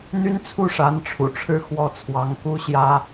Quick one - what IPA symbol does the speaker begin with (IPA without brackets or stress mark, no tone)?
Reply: n̪